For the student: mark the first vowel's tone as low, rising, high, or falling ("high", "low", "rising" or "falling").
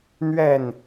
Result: falling